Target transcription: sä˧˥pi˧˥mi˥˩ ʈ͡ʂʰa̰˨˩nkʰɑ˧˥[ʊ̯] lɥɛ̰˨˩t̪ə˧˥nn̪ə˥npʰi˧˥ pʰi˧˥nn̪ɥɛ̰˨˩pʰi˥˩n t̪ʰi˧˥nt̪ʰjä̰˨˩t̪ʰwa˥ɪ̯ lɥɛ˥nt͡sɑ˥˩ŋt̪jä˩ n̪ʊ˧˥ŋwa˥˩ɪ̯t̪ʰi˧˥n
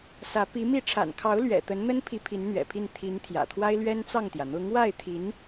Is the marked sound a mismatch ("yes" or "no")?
no